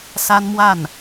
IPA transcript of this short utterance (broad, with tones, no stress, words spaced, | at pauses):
sa˥nmwa˥˩n